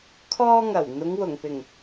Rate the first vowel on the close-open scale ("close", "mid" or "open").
mid